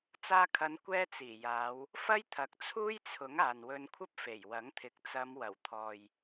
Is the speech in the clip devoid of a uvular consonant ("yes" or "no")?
yes